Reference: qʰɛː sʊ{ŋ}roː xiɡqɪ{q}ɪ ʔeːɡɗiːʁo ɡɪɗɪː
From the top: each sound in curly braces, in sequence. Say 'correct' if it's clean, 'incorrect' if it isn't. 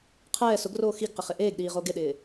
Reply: incorrect: ɡ, incorrect: χ

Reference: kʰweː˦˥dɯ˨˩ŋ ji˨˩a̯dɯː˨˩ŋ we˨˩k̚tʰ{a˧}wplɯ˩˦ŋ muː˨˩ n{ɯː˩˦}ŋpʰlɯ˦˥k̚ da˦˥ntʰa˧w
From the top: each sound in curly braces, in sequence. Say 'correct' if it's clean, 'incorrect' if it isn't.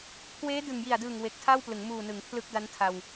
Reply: incorrect: a˥˩, incorrect: ɯ˩˦

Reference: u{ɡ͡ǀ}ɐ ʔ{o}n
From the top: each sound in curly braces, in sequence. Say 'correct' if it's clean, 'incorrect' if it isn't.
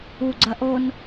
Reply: correct, correct

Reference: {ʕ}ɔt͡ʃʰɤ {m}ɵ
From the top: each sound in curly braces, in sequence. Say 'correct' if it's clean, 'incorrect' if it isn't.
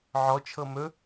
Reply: correct, correct

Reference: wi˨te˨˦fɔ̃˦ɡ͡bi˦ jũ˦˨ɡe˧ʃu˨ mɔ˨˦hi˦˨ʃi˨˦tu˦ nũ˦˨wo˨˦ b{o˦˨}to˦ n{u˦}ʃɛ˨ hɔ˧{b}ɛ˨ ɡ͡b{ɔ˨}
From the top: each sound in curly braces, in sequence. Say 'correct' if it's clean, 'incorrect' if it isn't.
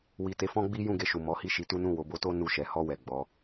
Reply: incorrect: o˧, incorrect: u˦˨, incorrect: w, incorrect: ɔ˨˦

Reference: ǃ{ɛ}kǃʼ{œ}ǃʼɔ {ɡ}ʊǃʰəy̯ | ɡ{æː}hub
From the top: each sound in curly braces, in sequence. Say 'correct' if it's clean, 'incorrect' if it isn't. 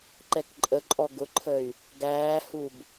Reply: correct, incorrect: ə, correct, correct

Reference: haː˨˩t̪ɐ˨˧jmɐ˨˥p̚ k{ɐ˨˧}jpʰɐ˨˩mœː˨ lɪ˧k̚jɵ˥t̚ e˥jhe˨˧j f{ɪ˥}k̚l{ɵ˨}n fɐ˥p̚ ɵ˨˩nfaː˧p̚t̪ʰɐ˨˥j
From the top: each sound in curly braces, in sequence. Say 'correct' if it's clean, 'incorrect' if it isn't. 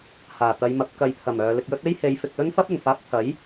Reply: incorrect: ɐ˨, incorrect: ɪ˨, incorrect: ɵ˥

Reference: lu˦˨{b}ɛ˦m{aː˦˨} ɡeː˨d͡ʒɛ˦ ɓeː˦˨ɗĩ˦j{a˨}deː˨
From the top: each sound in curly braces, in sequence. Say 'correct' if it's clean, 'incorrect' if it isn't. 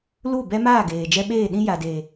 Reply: correct, correct, correct

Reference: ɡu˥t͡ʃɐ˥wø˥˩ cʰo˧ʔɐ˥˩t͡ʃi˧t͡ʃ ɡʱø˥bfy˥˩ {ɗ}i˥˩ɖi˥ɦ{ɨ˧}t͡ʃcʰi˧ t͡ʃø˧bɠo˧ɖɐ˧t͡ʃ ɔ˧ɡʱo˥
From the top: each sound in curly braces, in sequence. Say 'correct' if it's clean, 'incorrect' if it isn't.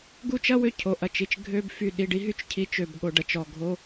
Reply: correct, incorrect: y˧

